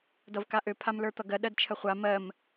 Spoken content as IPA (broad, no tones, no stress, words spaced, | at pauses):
dʌvkaʔø pʰamlə˞t̪ʌɡɜ ɗɜdt͡ʃʰəχʷa mɜm